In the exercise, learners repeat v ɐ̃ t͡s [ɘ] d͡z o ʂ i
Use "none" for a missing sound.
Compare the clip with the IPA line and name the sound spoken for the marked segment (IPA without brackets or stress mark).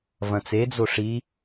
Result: e